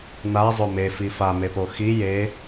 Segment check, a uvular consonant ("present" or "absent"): absent